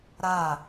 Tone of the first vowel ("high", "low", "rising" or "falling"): falling